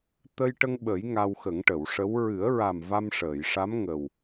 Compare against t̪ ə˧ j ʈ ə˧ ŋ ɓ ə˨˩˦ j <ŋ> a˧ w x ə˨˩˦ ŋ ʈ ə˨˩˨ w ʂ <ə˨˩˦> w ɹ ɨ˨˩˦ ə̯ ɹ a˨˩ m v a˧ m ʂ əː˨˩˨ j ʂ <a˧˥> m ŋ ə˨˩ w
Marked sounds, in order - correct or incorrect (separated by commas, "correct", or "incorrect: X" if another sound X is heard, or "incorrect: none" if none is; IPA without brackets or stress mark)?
correct, incorrect: ə˧˥, correct